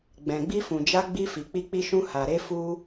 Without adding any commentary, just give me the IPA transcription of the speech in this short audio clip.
ɡ͡b ɛ̃˨ ɡ͡b i˧ f ũ˨ d͡ʒ a˧ ɡ͡b i˧ f i˨ k͡p i˧ k͡p i˧ ʃ ũ˧ h a˨ ɾ e˧ f u˦

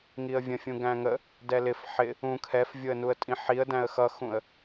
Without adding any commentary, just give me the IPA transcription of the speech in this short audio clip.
ŋ i ə̯ vʲ ə̃ fʲ ũ ɡ æ̃ ŋ ə | d ɛ l ɪ f ħ ɪ | ũ kʰ ɛ f vʲ ʊ ə̯ n u ə̯ tʼ ĩ ħ i ə̯ d æ̃ ə̯ x ʌ x ũ ə̯

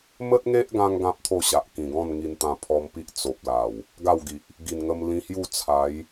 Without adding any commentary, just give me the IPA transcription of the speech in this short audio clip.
m ə˦ t̚ ŋ e˦ ʔ ɡ ã˧ ŋ ɡ ã˦ p̚ t̪ʰ o˥˧ ɕ a˨ ʔ k ĩ˨˩ ɡ ɔ̃˥˧ n ŋ i˧ n t̪ ã˧ pʰ ɔ˧ m p i˦ ʔ t͡s o˨ p̚ l a˨˩ w | ɡ a˥˧ w ɡ i˨ ʔ | ɡ i˨˩ n ŋ ə˧ m l ĩ˧ h j u˥˧ t͡sʰ a˨˦ j

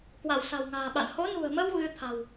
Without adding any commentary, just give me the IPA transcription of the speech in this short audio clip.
k w a˧˩ w s a̤˨˩ w ŋ a̤ː˨˩ ɓ a̰˧˨ n h o˨˦ n ṳ˨˩ ə̯ m ə˧ w ɣ ɨ˧ t̪ʰ a̤˨˩ w

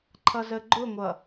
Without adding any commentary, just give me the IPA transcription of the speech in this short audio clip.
ǃʰ ʌ z ə ɡ͡ǃ ʊ ŋʷ ʌ

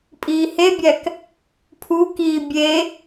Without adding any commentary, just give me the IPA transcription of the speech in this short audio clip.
pʼ iː h e bʲ æ k | pʰ u k iː bʲ e

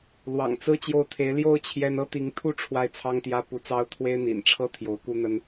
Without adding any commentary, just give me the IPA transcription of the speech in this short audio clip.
l w ɑ̰˨˩ ŋ t͡s ɹ̩˥ t͡ɕ j o˥˩ ʊ̯ t̪ʰ e˧˥ ɪ̯ l j o˥ ʊ̯ t͡ɕʰ j ɛ˥ n ɤ˥ t̪ i˧˥ ŋ t̪ʰ u˥ ʈ͡ʂʰ w a˥˩ ɪ̯ t͡sʰ ɑ˥ ŋ t̪ j ä˥ p u˧˥ t͡s ɑ˥ ʊ̯ t̪ʰ w e˥ ɪ̯ n̪ ḭ˨˩ n ʈ͡ʂʰ ɤ˥ t̪ʰ j o˧˥ ʊ̯ k u˥ n̪ ə˥ n

